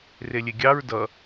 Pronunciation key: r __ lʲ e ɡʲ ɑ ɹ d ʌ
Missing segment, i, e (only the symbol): e